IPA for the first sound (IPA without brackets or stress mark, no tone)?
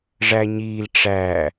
ʐ